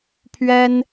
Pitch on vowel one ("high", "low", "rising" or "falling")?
high